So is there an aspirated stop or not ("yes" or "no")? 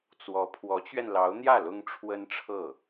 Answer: yes